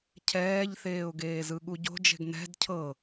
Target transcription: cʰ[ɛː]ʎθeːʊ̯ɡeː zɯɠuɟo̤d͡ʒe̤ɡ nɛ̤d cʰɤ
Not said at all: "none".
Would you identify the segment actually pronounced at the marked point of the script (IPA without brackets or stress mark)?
ɛː